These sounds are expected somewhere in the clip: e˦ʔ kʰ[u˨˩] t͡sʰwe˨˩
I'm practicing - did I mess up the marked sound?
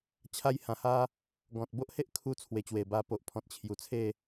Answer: yes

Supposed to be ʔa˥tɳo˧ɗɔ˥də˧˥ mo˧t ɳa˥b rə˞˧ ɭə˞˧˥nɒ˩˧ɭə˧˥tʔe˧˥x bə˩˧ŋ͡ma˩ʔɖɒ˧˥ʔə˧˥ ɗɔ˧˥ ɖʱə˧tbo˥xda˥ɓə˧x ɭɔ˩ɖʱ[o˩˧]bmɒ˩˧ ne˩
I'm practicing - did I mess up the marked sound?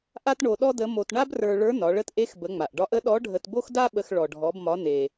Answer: yes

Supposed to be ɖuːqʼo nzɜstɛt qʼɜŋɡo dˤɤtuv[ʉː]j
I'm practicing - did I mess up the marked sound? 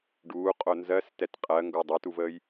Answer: yes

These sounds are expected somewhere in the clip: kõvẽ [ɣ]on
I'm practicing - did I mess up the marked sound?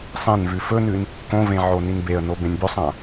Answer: yes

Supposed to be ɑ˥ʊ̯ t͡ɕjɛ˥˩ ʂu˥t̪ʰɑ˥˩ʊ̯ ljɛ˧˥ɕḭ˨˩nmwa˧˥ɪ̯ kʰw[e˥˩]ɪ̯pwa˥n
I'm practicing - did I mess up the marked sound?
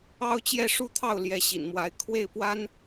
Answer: no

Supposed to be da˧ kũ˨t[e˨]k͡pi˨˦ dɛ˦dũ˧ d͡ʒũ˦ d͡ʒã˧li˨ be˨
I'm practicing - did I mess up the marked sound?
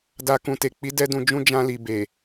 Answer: no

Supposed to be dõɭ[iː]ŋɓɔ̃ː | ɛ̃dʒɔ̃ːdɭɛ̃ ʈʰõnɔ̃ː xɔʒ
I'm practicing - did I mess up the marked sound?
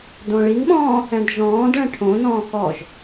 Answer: yes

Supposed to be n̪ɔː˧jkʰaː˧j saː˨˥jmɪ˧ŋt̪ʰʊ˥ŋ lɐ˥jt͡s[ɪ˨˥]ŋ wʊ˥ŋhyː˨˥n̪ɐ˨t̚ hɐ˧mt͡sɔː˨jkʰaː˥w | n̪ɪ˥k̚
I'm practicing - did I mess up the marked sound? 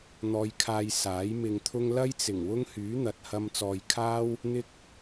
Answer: yes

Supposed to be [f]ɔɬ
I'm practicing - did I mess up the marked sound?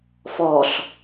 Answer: no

